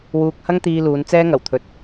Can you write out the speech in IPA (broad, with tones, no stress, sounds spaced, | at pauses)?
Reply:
w uː˧ k̚ h ɐ˥ ŋ t̪ iː˧ l uː˨˧ n t͡s ɛː˥ ŋ ɐ˨˩ w t̪ʰ ɵ˨ t̚